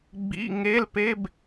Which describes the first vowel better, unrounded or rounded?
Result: unrounded